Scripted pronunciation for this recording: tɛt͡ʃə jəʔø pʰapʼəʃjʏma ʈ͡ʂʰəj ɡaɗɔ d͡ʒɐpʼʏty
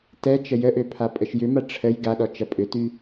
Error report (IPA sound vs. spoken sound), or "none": d͡ʒ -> t͡ʃ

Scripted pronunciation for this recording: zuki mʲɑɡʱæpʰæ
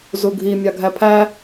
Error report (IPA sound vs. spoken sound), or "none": k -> ɡʱ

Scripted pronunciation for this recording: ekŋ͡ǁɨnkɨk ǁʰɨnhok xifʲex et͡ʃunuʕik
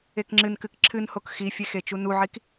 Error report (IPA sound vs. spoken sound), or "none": none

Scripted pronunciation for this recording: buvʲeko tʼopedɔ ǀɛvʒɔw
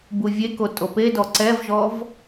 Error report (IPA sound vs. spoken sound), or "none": w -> v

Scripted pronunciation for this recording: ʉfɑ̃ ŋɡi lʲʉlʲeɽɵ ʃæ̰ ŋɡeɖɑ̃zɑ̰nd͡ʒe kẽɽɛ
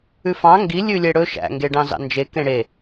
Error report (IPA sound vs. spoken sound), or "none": ɛ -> e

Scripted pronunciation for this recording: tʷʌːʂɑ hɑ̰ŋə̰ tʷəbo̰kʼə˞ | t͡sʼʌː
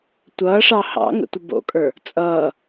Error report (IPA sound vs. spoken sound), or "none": none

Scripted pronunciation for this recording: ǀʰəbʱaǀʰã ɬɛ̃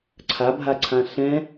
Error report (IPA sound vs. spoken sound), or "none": ə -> a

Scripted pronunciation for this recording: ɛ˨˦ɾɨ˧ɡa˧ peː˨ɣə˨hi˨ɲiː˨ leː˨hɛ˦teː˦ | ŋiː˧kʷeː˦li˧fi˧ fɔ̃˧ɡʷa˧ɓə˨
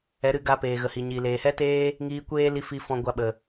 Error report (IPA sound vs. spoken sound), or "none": none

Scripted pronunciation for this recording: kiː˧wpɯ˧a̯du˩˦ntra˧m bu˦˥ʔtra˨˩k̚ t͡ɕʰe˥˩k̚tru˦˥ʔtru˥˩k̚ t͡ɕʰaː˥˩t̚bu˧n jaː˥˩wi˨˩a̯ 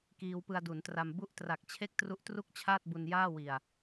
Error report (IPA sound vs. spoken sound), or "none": none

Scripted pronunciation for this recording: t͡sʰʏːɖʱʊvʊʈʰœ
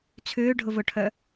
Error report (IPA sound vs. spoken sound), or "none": none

